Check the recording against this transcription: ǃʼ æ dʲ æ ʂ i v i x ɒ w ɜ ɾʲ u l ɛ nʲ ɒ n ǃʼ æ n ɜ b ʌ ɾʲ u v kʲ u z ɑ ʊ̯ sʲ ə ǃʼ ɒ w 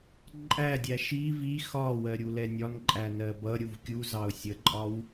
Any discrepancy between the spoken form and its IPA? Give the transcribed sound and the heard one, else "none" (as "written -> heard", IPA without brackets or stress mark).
ʂ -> ʃ